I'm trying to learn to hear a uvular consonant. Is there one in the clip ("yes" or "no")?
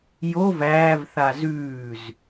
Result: no